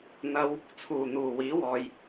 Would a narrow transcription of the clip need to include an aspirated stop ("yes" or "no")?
yes